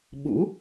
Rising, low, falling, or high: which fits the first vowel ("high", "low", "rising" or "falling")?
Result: rising